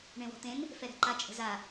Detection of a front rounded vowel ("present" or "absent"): absent